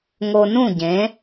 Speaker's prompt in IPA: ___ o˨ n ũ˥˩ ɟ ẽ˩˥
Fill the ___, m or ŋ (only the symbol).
ŋ